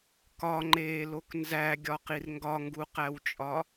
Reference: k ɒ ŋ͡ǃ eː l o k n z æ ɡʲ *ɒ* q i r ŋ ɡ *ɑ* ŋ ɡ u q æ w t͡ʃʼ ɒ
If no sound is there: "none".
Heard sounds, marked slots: ɒ, ɒ

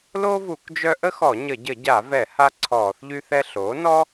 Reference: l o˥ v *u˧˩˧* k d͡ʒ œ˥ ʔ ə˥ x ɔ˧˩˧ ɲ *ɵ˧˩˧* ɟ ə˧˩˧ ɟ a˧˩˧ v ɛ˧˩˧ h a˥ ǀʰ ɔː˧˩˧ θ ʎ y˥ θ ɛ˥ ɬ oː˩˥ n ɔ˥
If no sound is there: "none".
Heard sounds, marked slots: u˧˩˧, ə˧˩˧

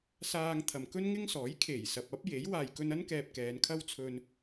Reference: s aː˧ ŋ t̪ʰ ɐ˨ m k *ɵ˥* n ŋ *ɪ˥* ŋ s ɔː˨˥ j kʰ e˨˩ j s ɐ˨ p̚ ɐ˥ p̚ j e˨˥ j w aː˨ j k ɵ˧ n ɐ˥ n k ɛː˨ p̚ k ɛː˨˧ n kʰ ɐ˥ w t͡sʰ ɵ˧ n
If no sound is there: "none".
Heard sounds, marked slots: ɵ˥, ɪ˥

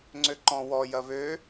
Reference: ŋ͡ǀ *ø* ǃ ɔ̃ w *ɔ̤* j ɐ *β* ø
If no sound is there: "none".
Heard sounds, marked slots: ø, ɔ, β

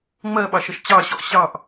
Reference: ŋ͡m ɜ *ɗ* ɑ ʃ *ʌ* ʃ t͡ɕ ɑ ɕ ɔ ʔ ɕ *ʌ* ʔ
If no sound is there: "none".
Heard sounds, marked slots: ɓ, ʌ, ɑ

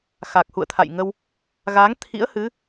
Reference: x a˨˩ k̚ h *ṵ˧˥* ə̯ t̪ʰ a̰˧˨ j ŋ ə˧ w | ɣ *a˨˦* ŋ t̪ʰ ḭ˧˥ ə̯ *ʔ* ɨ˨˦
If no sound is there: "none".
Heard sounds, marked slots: ṵ˧˨, a˨˦, h

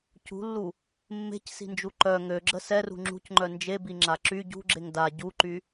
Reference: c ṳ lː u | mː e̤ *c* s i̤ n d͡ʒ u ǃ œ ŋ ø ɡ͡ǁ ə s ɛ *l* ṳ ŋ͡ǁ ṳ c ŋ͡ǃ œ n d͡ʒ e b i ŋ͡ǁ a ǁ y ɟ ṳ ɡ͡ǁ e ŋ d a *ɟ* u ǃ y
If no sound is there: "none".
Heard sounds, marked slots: c, r, ɟ

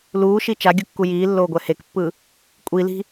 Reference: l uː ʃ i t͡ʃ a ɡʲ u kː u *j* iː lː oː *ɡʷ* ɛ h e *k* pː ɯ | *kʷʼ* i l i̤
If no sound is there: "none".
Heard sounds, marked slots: j, ɡʷ, k, kʷʼ

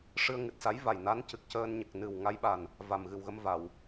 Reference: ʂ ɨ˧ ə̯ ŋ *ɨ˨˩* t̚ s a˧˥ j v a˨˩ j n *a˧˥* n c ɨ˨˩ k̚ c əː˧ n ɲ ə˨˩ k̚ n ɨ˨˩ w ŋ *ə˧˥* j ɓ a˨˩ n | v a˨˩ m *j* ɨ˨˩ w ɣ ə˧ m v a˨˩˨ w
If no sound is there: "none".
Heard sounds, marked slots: ɨ˨˩, a˧˥, a˧˥, ɣ

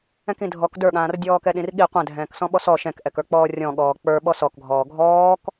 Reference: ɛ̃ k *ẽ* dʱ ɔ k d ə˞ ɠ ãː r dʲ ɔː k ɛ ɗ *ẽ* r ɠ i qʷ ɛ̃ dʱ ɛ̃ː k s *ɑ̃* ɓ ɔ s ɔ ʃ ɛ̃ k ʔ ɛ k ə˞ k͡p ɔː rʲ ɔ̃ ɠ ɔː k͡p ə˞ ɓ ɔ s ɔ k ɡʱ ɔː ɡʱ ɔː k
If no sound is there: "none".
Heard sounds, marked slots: ĩ, ĩ, ɔ̃

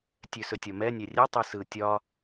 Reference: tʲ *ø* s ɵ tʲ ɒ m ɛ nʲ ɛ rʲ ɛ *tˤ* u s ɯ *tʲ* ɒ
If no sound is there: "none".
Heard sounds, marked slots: ø, tˤ, tʲ

